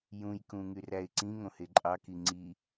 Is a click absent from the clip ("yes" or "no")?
no